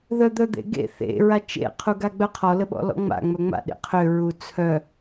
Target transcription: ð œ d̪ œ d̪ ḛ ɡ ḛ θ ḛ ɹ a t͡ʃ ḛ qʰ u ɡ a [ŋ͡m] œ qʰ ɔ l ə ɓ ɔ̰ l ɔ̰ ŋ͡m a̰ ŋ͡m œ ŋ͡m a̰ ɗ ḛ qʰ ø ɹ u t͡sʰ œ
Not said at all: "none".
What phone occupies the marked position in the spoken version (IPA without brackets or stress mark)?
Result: ɡ͡b